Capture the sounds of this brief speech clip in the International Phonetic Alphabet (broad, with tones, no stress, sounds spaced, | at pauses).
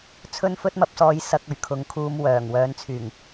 t͡sʰ ɵ˥ n f ɵ˥ t̚ m ɐ˧ p̚ s ɔː˧ j s ɐ˧ k̚ ɵ˨˩ ɥ kʰ ʊ˨˥ ŋ kʰ uː˧ m w œː˨˩ ŋ w œː˨ n t͡sʰ yː˨˩ ŋ